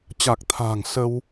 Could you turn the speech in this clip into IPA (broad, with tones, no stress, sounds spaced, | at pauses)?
t͡ɕ a˨˩ k̚ t̪ʰ a̤ː˨˩ ŋ s ə˧ w